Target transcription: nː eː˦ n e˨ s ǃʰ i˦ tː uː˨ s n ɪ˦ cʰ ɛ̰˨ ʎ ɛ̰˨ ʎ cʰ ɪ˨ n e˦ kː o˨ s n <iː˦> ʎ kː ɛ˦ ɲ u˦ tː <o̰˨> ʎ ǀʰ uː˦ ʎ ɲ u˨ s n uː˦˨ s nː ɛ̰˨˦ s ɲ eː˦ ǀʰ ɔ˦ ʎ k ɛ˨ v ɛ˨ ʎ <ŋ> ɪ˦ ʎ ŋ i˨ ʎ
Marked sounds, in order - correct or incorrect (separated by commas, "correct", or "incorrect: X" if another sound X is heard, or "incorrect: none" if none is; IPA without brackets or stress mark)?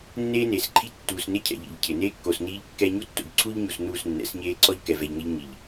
correct, correct, correct